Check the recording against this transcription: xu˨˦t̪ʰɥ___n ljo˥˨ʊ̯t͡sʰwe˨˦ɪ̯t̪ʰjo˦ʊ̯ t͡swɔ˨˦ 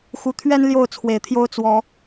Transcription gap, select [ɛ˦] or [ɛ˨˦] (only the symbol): ɛ˦